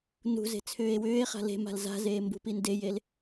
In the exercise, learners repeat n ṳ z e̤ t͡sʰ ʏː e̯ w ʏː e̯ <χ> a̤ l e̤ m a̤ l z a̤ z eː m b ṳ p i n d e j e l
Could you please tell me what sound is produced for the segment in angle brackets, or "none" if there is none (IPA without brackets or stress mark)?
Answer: χ